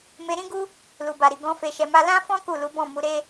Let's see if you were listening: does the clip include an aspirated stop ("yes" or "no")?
no